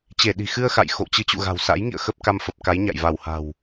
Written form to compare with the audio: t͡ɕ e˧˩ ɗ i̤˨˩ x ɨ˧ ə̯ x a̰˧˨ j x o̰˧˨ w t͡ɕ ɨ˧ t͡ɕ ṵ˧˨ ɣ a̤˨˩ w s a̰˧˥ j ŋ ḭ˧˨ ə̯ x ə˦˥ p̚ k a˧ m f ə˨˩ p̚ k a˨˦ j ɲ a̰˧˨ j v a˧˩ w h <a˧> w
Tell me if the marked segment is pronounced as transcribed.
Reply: no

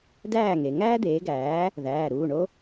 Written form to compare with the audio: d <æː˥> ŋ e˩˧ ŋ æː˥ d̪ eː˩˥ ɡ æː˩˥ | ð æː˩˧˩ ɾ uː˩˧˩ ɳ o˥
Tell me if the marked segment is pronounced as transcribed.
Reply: no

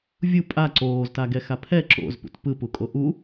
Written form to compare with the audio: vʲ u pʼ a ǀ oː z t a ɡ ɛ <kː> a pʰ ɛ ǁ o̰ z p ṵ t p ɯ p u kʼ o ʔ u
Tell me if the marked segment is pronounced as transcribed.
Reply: no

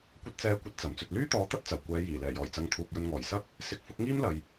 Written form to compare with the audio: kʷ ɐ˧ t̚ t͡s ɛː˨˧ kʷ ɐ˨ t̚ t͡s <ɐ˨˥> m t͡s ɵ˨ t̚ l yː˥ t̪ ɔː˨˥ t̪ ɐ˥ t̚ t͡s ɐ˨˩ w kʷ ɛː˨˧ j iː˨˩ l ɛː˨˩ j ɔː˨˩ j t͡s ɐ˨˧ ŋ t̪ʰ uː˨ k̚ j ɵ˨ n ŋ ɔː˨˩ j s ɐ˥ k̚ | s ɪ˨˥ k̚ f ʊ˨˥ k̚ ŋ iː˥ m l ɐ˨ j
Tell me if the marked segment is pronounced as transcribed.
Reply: no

